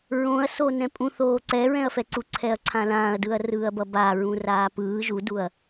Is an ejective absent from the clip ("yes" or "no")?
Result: no